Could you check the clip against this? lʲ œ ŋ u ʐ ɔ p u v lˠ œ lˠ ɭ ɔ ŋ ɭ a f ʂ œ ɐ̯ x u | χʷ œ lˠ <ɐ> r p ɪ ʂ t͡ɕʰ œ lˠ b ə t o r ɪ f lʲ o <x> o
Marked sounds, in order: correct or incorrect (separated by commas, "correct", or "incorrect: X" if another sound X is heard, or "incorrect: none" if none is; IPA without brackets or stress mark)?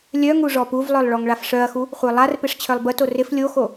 incorrect: a, correct